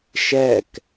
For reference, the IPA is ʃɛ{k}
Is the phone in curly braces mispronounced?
no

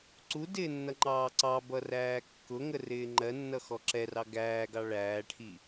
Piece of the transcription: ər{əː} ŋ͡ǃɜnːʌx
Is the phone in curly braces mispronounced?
yes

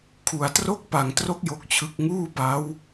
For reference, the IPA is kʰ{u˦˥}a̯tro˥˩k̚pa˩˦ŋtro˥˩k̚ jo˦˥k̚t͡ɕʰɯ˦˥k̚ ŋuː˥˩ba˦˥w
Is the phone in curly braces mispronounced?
yes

